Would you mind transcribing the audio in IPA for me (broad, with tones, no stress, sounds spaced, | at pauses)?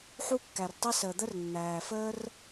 ħ u˥ kː æ˩ r tˤ i˥ s əː˩ d̪ ə˥ r nː æː˩ f əː˥ r